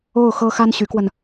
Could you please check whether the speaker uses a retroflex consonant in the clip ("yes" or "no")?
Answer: no